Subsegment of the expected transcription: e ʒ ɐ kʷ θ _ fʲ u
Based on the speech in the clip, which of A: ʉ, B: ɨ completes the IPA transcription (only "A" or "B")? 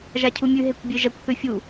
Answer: A